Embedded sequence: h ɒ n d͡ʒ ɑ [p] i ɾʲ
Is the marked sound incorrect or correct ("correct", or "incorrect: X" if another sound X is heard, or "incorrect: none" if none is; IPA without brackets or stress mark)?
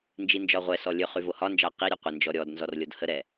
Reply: incorrect: q